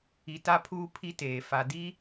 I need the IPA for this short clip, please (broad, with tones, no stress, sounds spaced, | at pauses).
i˨ t a˦ pʰ uː˦ pʰ i˦ t eː˨ f a˨ d i˦